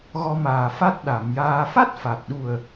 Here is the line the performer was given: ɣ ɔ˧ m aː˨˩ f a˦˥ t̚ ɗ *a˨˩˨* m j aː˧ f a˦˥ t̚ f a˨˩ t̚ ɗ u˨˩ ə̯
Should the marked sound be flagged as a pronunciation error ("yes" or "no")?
no